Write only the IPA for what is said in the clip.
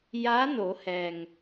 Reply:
ja˧˥ no˩˧hɛː˩ŋ

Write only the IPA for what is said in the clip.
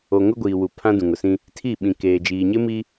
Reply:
o˨ ŋʊ˦ɡʷiː˨wu˨ pʰã˦dũ˨ŋʊ˨sĩ˦ | tʰi˦˨ɓĩ˨keː˨ d͡ʒiː˨ɲɪ˦mi˦

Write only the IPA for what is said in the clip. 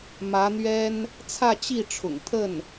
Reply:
mä˧˥n̪ɥɛ˥n | t͡sʰä˥˧t͡ɕi˥˩ʈ͡ʂʰʊ̰˨˩ŋ t̪ʰə˥˩n

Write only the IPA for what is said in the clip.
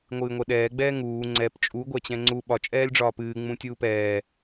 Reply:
ŋʷɨːŋʷɛɗɛː ɡ͡bɛːŋuː ŋ͡ǀɛp t͡ʃʼu ɡʷæt͡ɕɛ̃ŋ͡ǀu ɓɒ t͡ʃʼɛːlʲɖ͡ʐɒːpɨː ŋ͡mũtʲuːpɛː

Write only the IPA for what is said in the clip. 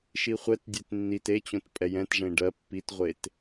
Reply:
ʃiχʷɛtdʲet nːit et͡ɕõt pʼɛjɛ̃tʐẽ ɖɜ pːitʁʷet

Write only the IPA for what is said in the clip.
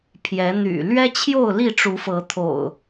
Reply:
pʰjɛ˨˦ n̪y̰˨˩ lɥɛ˦t͡ɕʰjo˥˨ʊ̯li˥˨ ʈ͡ʂu˨˦fɤ˨˦t̪ʰo̰˨˩ʊ̯

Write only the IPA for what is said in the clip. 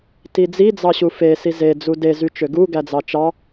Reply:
tid͡zid͡zɑɕu fesi ze d͡zude zyt͡ʃøɡu ɡæd͡zɑt͡ʃɑ

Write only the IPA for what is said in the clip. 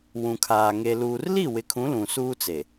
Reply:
wũ˨kʰaː˨ ŋe˨luː˨rli˦˨ wɪ˨˦kʰũ˨˦ lũ˨suː˦t͡se˨

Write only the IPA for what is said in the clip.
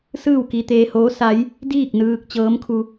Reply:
sɯː˥˨wki˧t̪eː˧hoː˧˥ sa˧˥j | diː˥˨k̚nɯː˧k̚ t͡ɕɤː˧˥mkʰu˧

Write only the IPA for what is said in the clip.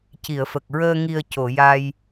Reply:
ci˨˩˨ə̯fə˨˩k̚ɹəː˧ ŋi˨˩ə̯ co˨˩˨ ja˧j

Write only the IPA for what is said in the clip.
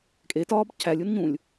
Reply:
kʼe tɒːbcʰælʲ unɲũlʲ

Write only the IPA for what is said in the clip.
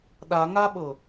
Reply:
ɗaŋaɓɤ

